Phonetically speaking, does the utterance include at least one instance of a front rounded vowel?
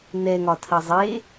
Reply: no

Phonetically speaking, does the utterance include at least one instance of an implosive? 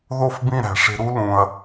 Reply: no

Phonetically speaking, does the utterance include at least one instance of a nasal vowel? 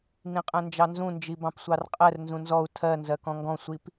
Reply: yes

